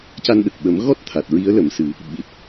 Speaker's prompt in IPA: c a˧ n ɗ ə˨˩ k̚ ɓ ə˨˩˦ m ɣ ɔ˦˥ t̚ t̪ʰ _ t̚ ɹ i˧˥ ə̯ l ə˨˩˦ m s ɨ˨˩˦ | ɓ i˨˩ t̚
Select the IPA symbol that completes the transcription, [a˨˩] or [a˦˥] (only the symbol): a˨˩